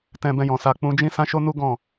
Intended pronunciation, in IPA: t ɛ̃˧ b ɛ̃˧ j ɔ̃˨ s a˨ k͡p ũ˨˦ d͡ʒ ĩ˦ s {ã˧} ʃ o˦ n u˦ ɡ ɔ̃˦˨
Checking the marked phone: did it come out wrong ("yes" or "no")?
yes